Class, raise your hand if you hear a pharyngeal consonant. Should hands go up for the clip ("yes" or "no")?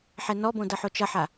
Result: yes